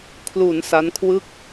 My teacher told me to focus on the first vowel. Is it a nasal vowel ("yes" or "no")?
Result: no